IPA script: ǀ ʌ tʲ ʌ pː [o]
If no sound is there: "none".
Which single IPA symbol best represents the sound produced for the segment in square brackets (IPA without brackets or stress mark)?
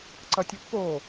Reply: o